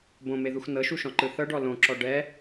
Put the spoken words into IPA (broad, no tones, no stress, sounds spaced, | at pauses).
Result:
b õ m e ð u x n ɤ ʃ u ʃ ɔ̃ ǃ ɯ θ ɤ ɖ ɔ l õ ǁ ɔ ɖ ɛ